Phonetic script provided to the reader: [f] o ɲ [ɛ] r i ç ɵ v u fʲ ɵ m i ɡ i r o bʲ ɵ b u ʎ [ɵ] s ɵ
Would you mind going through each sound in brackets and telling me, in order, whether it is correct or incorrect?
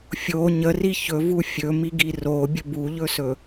incorrect: fʲ, incorrect: ə, correct

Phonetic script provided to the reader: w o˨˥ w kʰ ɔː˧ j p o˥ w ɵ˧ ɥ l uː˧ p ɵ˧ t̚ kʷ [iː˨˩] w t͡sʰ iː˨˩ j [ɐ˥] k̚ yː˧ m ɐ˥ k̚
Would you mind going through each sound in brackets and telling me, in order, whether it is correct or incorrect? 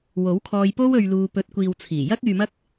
incorrect: iː˨, correct

